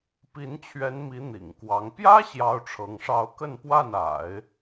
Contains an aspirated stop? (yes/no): yes